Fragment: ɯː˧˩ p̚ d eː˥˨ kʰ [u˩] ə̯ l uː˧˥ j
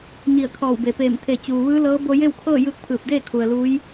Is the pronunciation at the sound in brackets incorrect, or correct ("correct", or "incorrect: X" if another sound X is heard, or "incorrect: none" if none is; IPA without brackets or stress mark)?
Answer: correct